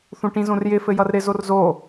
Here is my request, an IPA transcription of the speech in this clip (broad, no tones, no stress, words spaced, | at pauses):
θũʈĩzõrjɪ fɘjʌrɾɪ zorzo